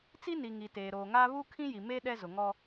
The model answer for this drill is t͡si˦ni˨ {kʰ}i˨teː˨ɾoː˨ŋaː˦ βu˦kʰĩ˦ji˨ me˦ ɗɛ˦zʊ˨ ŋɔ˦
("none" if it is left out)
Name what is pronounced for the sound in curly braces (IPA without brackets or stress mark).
ŋ